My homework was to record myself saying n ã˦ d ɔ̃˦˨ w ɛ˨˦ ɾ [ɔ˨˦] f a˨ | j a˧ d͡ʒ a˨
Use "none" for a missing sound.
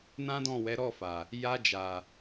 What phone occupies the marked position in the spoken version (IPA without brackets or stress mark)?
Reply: ɔ˦˨